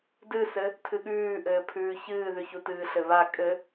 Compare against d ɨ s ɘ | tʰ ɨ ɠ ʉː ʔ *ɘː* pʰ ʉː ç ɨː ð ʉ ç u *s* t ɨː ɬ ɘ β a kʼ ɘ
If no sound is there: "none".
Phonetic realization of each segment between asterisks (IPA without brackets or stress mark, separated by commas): ɘː, none